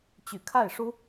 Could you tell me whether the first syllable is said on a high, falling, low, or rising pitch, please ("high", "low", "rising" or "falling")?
low